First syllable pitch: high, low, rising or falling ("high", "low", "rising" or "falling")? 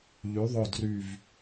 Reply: rising